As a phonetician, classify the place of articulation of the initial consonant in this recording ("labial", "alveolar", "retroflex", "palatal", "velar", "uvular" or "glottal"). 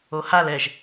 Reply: glottal